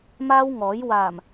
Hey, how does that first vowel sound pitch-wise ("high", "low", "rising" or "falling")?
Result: high